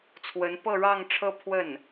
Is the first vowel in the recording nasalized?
no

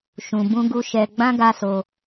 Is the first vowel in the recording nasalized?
yes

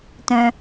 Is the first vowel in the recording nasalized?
yes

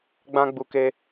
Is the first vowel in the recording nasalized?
yes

